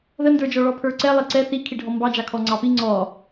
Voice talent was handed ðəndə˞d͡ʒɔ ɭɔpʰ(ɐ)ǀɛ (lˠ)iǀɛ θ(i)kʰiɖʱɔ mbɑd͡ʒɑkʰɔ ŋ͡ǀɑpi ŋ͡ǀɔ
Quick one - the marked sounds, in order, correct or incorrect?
incorrect, correct, correct

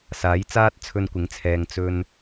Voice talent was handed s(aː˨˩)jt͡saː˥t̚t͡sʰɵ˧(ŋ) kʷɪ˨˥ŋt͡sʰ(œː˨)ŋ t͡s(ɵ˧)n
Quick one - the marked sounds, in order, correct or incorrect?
incorrect, incorrect, incorrect, correct

